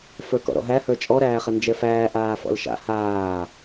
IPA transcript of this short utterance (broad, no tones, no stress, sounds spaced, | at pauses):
f ə˞ k ɔ̰ ɾ ɔ̰ ɦ æ h ə˞ t͡ʃʼ ɔ ɾ æː χ ə n d͡ʒ ɛ f æː ʔ aː f ɔ̰ l ʃ a̰ h aː